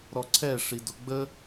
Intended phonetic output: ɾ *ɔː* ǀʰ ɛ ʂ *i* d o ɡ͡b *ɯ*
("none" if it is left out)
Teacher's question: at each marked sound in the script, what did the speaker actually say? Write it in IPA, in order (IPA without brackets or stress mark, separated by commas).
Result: ɔ, i, ə